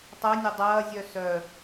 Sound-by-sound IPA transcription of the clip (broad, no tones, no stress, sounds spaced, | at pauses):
tˤ æ nʲ ɐ dˤ ɐː zʲ œ s œ